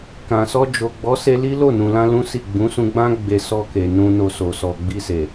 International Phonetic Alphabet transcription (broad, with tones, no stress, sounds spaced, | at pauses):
k ã˨ s ɔ˧ d͡ʒ o˨ ɡ͡b ɔ˨˦ s e˧ l i˦ l o˦˨ n ũ˨ l ã˧ l ũ˦ s i˦˨ ɡ͡b ũ˨˦ s ũ˧ ɡ͡b ã˦ ɡ͡b e˧ s ɔ˧ k e˨ n ũ˧ n o˧ s o˨ s ɔ˨ ɡ͡b i˧ s e˨